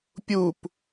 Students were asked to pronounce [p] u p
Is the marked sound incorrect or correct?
incorrect